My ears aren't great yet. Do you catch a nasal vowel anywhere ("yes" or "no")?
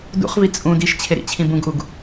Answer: yes